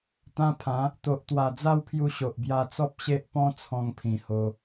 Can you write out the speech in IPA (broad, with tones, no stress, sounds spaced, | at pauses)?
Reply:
t̪ ã˧ pʰ ã˨˦ | t̪ o˨ ʔ t̪ w a˨˩ d͡z a˥˧ w pʰ j u˧ ɕ o˨ ʔ b j a˧ t͡s ɔ˦ p̚ ɕ e˦ ʔ p ɔ̃˦ t͡sʰ ɔ̃˧ ŋ pʰ ĩ˨˩ h o˧